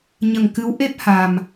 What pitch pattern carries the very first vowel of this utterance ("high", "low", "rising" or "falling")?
low